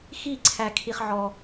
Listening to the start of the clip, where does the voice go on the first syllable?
falling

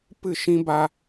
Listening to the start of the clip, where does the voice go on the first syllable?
falling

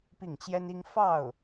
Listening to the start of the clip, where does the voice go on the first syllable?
falling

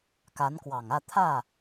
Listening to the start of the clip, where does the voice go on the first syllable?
rising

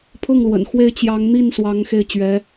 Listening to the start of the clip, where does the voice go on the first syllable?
falling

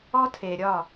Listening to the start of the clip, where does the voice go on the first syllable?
high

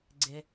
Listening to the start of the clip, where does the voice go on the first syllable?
low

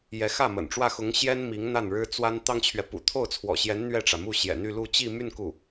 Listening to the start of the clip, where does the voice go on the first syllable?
rising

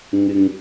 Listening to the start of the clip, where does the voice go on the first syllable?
low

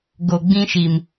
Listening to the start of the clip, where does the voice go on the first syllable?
low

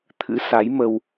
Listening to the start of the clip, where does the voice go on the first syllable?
rising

